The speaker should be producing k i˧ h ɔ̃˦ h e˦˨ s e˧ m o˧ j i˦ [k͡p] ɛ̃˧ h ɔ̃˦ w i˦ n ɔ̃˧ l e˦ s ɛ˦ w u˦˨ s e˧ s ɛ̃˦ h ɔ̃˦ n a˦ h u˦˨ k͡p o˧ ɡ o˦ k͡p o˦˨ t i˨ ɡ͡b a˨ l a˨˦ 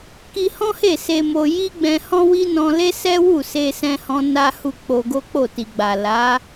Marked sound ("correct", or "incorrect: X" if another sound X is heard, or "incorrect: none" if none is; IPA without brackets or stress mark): incorrect: ɡ͡b